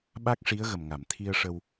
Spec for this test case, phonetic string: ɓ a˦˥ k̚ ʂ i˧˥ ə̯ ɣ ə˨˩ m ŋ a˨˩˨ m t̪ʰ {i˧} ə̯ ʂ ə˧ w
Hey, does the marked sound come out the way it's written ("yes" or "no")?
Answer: yes